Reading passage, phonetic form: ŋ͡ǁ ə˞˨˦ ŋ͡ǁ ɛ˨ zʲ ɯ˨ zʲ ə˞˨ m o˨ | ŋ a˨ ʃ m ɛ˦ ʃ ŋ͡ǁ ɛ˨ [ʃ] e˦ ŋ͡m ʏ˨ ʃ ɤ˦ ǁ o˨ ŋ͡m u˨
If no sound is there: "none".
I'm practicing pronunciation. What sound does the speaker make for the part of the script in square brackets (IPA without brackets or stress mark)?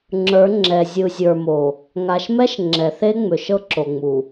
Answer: θ